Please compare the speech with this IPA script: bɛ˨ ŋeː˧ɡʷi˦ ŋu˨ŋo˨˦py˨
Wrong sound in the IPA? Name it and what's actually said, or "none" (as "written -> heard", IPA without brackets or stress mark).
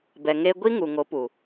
y˨ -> u˨